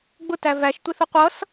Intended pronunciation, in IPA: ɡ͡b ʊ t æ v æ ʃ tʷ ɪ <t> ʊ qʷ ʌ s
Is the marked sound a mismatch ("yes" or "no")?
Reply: yes